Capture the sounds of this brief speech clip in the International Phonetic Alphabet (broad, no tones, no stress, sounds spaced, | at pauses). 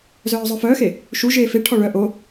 z œː zˤ œ f œː x e | ʃ u ʒ eː f e ʈʰ ɔ ɭ œ ʔ o